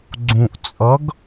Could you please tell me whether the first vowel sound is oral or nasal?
nasal